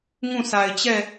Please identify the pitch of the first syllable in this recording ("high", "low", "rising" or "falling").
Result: falling